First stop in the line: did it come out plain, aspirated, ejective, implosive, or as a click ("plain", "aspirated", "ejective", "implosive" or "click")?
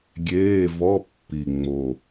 plain